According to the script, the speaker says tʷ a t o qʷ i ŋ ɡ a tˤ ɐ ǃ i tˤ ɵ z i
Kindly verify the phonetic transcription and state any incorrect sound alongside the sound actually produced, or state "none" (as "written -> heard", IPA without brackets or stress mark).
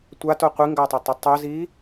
ǃ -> tˤ